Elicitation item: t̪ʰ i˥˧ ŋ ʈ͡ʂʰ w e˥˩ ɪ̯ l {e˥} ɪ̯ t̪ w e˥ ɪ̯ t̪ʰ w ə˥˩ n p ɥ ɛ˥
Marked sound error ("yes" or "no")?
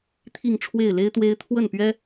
no